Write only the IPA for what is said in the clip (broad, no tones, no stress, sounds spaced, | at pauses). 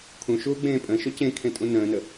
kʰ ũ ʃ uː ɡ͡b ẽː pʼ ə̃ː ʃ o c ẽ kʰ ẽ tʼ ũ n ə̃ː n ə